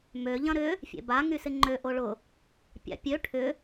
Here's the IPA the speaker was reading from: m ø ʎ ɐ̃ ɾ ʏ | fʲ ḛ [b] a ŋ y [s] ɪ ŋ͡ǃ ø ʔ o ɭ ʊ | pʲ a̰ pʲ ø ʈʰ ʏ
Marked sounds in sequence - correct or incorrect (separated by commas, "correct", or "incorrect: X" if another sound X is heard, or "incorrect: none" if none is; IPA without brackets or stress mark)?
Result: correct, correct